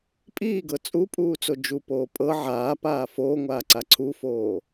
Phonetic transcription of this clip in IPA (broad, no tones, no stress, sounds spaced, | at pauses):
pʼ iː ɡ ɤ t͡sʼ u pʼ uː t͡s o d͡ʒ u p oː pʼ ɤ ʕ aː p aː f oː ŋʷ aː ǀ a ǀʰ u f oː